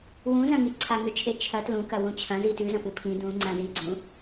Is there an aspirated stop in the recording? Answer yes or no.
yes